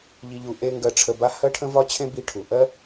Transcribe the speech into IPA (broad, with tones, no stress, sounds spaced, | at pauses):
ʎ i˧ ʎ u˧ ʔ e˥ ŋ ɡ ɜ˧ ʈ͡ʂʰ ə˧ b a˥ h ɜ˥ ʈʰ ə̃˥ v ɒ˥ t͡ɕʰ ẽ˥ b i˧ ʈʰ u˩ ʔ ɜ˥